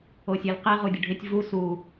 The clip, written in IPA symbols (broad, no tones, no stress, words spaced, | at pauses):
osʲelqi ʁudʲʊɖʱɪtʲ vu su